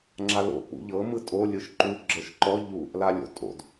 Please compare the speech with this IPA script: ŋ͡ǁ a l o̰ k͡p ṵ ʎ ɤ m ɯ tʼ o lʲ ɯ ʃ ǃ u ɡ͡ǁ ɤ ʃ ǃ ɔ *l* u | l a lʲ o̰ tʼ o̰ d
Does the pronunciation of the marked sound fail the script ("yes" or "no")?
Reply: yes